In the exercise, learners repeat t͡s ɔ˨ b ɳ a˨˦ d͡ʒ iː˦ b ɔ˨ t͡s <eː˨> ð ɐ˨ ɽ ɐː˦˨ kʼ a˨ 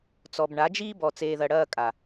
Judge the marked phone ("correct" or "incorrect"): correct